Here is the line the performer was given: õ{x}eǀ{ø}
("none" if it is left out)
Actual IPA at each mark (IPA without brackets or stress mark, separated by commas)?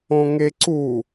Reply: ŋ, u